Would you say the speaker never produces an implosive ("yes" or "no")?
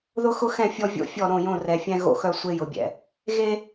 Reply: yes